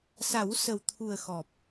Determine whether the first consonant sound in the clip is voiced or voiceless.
voiceless